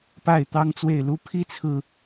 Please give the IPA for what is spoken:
p a˥˩ ɪ̯ t̪ ɑ˥ ŋ t͡s w e˥˩ ɪ̯ l u˥ pʰ i˥ t͡sʰ ɹ̩˨

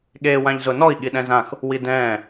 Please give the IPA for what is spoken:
ɠ eː w ã ʎ z ʊ n ɔ i̯ ɠ i ɗ ɛ̃ z ã x | w i d ɛ̃ː

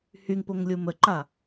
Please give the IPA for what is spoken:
h y ŋ p o ŋ lʲ u m ə ǃ a

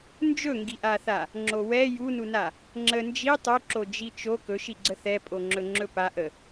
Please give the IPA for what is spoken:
n d͡ʒ ɵ ŋ ɡ i ʔ a θ a | ŋ͡ǁ o w ɛ j u n u n a | ŋ͡ǁ ə n d͡ʒ i tˤ u ǁ o d͡ʒ i t͡ʃ o k ɵ ʃ i ɡ͡ǀ ə θ ɛ pʼ o ŋ͡ǁ ɵ ŋ͡ǁ ɵ p a ʔ ə

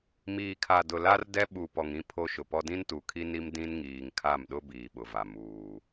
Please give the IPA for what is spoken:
m iː˨ kʰ a˨ d ʊ˨ l a˦ r d ɛ˦ ɓ u˨ p ɔ˨ ŋ ĩ˦ pʰ o˦ ʃ ʊ˨ p ɔ˦ d ĩ˦ n t u˨ kʰ i˦ n i˦ m d ĩ˦ n ŋ iː˨ ŋ kʰ a˦˨ m ɗ ʊ˦ b iː˨ ɓ ʊ˨ v a˨ m uː˨

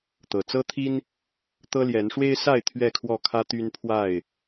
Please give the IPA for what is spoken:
t̪ ɤ˨˩ t͡s ɤ˦ t̪ʰ i˦ n | t̪ ɤ˦ l j ɛ˨˦ n ʂ w e˦ ɪ̯ s a˥˨ ɪ̯ t̪ʰ ɥ ɛ˥˨ kʰ w ɔ˥˨ kʰ ä˦ t̪ y˦ n pʰ w a˥˨ ɪ̯

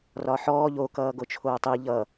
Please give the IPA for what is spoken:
r ɒ ħ ɔː ʎ o k ʌː ɡ o t͡ʃʰ oː tˤ i ʎ ʌ

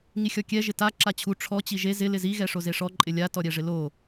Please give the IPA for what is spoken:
ŋ i xʲ ɔ kʲ ɛ ʒ ɪ t a ǁ a t͡ɕʰ u ʈ͡ʂʰ ɔ t͡ɕ i ʒ e z ɪ l ɪ z i ɣ ɛ ʂ o z e ʂ ɔ ǃʼ ɪ lʲ a t ɔ ɾʲ ɛ ʐ ɪ l o

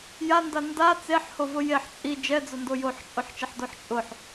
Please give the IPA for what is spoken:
j a n d a n d a t͡s e ħ h o v ʊ j e ħ t͡sʼ i d͡ʒ ɛ d͡z ʊ n d o j o ħ t͡ʃʼ o ħ t͡ʃ ɛ ħ d o ħ t͡ʃʼ ʊ ħ

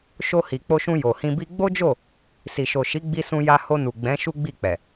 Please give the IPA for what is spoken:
ʃ o˧ h i˨ k͡p o˧ ʃ ũ˧ j o˨ h ĩ˧ b i˦ ɡ͡b o˦ d͡ʒ o˦˨ | s i˨ ʃ o˨ ʃ i˨˦ ɡ͡b i˧ s ũ˧ j a˧ h o˧ n u˨ ɡ͡b ɛ̃˨˦ ʃ u˦ ɡ͡b i˦˨ k͡p ɛ˨

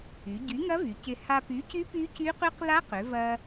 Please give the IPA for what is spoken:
y˩˧ ɟ y˨˥ ŋ ɐ˦˥ v y˩˧ c ɪ˧ h a˧ p y˨˥ c y˦˥ p y˦˥ c y˦˥ q y˦˥ q l a˦˥ q ʏ˩˧ v ɐ˧

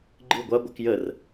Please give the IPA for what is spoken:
ɡ͡ǃ ɨ ɡʷ a ɡʷ ɨ k j ə r

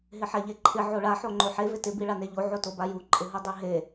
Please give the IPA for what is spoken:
ɦ ɪ ħ ɛ ʎ e ǃʰ ɪ ʕ o ɭ a ħ o ŋ͡ǃ o ħ e v ɪ t ɪ b i ɭ a n e ʎ o ʕ o t o b a j u ǃʼ ɪ ɦ u dˤ e ɦ e

